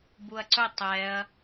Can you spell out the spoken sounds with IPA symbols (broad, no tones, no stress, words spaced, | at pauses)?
buɐ̯ǀɵ tˤɛɐ̯